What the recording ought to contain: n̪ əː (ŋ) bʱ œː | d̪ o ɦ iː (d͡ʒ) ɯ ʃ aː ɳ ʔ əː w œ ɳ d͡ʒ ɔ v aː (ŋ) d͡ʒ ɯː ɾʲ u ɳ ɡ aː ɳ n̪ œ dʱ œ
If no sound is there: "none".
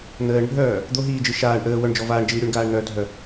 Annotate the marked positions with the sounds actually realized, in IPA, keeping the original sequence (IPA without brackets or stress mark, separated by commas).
ɳ, d͡ʒ, ɳ